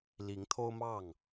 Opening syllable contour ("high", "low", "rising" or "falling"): rising